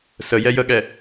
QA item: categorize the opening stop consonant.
implosive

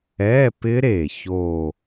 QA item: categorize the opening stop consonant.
plain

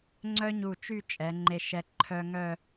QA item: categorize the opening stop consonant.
click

